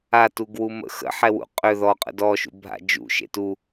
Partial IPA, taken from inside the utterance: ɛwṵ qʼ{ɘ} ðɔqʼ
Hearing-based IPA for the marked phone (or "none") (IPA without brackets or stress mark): ø